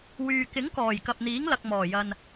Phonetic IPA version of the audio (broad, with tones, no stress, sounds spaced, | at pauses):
w yː˨ k ɪ˨˥ ŋ k ɔː˨˩ j k ɐ˨ p̚ n̪ iː˨˥ ŋ l ɐ˨ k̚ m ɔː˨˩ j ɐ˨ n